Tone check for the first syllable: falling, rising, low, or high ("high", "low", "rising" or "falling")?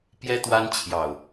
high